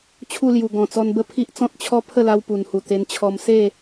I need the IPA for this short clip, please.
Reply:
t͡ɕʰu˥˧lju˨˩ ɡɔ̃˨˩t͡sɔ˧nbə˥˧pʰi˦ʔ t͡sɔ̃˦t̚t͡ɕʰɔ˦pʰə˥˧la˧w pu˨˩nhu˨˩ t̪e˧nt͡ɕʰɔ˧m se˥˧

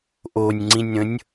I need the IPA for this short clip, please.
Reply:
ʔonʲŋ͡ǀĩnʲɾə̃nʲ

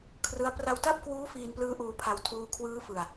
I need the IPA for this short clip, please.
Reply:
kʰrɯ˦˥a̯ pra˧wta˥˩p̚kwuː˦˥ fiː˧nplɯː˦˥ʔuː˧pʰa˧w tʰuː˧kʰwɯː˦˥ fɯ˧a̯

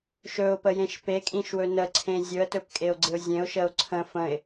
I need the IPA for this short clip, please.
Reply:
ʃɵʊ̯pəjẽʃ pekʼĩʃwɵ nəǀʰẽ zʲɵə̯tɵpkʼeʊ̯ɡ͡ǀɪʊ̯ zʲẽʊ̯ʃəʊ̯ ǀʰə̃ fə̃ɪ̯

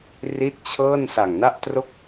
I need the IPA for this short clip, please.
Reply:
ri˦˥t̚ t͡ɕʰɤː˥˩n sa˨˩ŋna˥˩ʔtro˥˩k̚

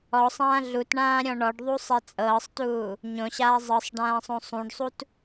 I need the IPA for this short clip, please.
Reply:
ɔsˤãː ɮutɳãːɾʲɔ̃ ɳɔɖðˤusˤɛ t͡sʼɤːsˤtuː | ɲõɕaː zˤɤsˤɖãːsˤõ sˤũɖsˤut

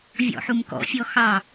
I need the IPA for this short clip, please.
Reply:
vʲɔ̰ħumkɔ̰ fʲɔxɑ

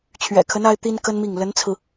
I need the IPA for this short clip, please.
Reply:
t͡ɕʰɥɛ̰˨˩kʰə˧˥n a˥ɪ̯t̪i˥nkə˥nmi˥˩ŋ lə˧˥nt͡sʰɹ̩˧

